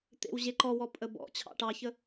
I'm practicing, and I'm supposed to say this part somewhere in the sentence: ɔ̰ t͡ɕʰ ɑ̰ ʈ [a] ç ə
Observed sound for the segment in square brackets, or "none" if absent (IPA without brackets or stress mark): ɑ